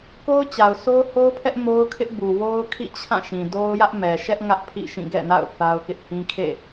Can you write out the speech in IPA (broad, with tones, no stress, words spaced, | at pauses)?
ko˦ʊ̯t͡ɕa˨ʊ̯so˦ʊ̯ ho˦ʊ̯pʰɛ˦ʔ mo˦ʊ̯kʰɪ˦ʔbu˨ wo˦ʊ̯kʰḭ˦˨t͡ɕʰã˦˨ʃĩ˨ do˦ʊ̯jä˦ʔ mɛ˨ʃɛ˦ʔ ŋä˦ʔ pʰḭ˦˨ʃĩ˦˨ ɡɛ̰˦˨na̰˦˨ʊ̯ θa˦ʊ̯kɪ˦ʔ hĩ˦kʰḛ˦˨